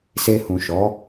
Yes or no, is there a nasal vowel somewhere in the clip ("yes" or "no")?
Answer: yes